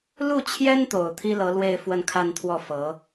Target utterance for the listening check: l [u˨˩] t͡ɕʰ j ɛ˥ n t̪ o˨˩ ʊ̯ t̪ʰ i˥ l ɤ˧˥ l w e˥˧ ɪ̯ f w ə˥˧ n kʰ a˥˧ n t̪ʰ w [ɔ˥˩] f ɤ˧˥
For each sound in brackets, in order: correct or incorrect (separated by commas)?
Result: incorrect, correct